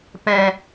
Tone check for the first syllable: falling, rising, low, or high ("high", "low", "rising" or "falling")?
low